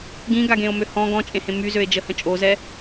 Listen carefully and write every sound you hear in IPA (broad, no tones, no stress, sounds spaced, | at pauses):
ɡ ĩ ɡ a ɡ ẽ o̯ m ø h ɔ̃ ɡ ɔ̃ t͡ʃʼ ẽ h ẽ m y z ø e̯ d͡ʒ ə h ə̃ t͡ʃʼ o z ɛ